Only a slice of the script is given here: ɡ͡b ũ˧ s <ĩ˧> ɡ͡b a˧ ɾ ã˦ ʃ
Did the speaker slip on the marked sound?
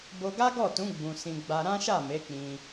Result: no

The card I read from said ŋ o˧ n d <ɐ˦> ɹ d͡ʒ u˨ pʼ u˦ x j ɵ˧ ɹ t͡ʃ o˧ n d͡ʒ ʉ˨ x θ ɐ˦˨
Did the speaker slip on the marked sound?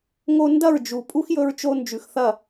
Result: yes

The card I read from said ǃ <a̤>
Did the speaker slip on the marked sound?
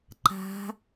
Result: no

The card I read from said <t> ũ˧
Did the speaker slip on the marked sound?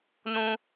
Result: yes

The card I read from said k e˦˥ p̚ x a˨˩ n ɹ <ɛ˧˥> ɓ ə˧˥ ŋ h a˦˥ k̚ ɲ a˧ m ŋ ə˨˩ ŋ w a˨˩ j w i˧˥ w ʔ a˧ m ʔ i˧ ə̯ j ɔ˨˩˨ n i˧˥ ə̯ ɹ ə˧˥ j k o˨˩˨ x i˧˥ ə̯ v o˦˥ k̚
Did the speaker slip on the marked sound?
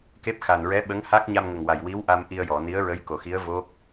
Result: no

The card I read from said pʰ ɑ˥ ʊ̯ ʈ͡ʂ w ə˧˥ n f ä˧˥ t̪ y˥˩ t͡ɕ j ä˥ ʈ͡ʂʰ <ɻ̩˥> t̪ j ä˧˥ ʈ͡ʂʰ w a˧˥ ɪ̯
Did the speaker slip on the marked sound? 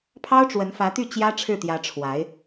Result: yes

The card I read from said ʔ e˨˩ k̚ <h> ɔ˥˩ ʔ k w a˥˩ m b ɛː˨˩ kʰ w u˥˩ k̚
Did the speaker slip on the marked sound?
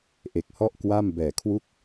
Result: no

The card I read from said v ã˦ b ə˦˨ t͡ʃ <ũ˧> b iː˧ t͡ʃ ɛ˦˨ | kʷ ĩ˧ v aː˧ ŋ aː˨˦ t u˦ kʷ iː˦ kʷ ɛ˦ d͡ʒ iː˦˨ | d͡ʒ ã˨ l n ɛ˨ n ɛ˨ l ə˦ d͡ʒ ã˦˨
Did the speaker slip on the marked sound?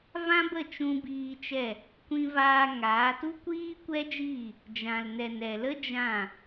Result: no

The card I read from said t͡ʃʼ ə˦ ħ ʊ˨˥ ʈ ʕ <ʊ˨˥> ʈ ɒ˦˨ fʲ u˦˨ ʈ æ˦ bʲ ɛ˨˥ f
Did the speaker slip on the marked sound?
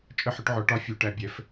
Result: yes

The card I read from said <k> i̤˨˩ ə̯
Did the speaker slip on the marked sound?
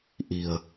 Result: yes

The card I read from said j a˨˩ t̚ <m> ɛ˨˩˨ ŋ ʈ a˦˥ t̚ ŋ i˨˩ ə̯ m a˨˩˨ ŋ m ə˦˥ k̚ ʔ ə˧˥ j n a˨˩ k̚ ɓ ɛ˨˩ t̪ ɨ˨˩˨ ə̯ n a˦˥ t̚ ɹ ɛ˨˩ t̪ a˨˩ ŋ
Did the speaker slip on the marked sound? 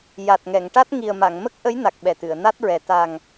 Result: yes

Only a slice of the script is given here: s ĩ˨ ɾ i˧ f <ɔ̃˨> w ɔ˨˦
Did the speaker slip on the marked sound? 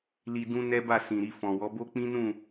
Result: no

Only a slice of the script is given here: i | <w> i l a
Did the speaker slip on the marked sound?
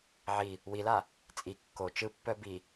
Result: no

